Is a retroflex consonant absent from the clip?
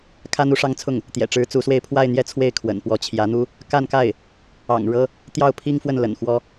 no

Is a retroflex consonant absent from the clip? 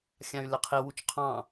yes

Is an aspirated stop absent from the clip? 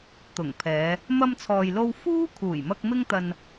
no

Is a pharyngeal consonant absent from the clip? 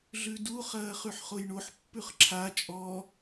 no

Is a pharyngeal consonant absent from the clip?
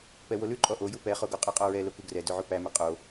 no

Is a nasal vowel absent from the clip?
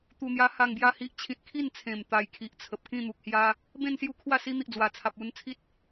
no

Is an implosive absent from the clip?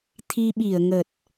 no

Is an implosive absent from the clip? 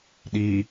no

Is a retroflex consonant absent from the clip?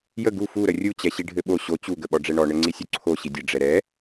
no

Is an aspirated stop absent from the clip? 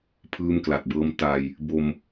no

